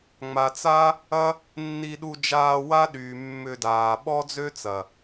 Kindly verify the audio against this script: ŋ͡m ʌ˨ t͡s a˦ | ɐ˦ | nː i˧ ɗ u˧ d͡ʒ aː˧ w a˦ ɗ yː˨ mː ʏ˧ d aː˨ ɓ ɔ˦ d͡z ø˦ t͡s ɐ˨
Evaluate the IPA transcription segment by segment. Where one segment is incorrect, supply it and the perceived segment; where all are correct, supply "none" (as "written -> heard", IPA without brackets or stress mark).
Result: ʌ˨ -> a˨